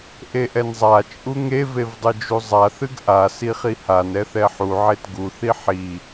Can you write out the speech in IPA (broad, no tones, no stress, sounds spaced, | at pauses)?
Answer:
ʔ e ʔ ɛ n zˤ a t͡ʃʼ u ŋ e v e v dˤ ɨ d͡ʒ u zˤ a θ ɨ ɡ ʔ a s i χ i h a n ɛ θ ɛ ħ u ʕ e t ɡ u θ i ħ i